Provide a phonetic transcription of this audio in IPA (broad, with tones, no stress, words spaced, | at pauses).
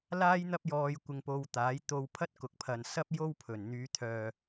laː˥jn̪ɐ˥p̚jɔː˧j kʷɪ˧ŋpo˧wt̪aː˨˥j t̪o˧w pʰɐ˥t̚kʊ˨k̚pʰɐ˨n sɐ˥p̚jo˥w pʰɵ˨˩nn̪yː˨˧ t̪ʰœː˨